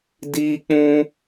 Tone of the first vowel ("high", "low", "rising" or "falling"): high